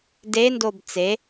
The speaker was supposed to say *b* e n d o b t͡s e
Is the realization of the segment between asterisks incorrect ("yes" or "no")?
yes